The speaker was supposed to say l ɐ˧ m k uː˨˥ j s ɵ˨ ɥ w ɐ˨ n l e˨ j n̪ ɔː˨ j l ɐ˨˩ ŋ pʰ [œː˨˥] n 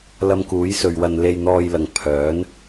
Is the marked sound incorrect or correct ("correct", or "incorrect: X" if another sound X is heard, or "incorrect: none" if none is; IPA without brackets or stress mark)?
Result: correct